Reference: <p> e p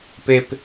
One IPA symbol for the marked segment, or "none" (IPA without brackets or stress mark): p